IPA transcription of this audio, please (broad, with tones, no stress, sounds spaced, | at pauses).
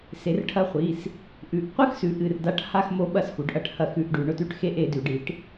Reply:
s e˩˧ r ʈʰ ɐ˧˥ χʷ i˩˧˩ s | ʔ ʉ˩˧˩ ʔ qʷ ɨ˦˨ x s ʉ˩˧ ʔ ɨ˩˧˩ r d a˧˥ ʈ h a˦˨ x m o˧˥ ɓ ɐ˧˥˧ s x u˩˧ ɖ ʔ ɐ˦˨ ʈ h ɐ˦˨ x ʉ˧˥˧ ʔ ɖ ʉ˩˧ ɳ ɵ˧˥˧ t ʉ˧˥˧ ʈ x e˧˥˧ ʔ e˩˧ d ʉ˩˧ ɖ i˩˧ ʈ